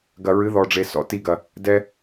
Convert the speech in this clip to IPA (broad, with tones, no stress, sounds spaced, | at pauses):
ɡ ɐ˨ ɹ ɨ˨˦ ð ɔ˨ ɖ͡ʐ e˨ s ɔ̰˧ t i˧ ɡ ɐ˨ | d ɛ˧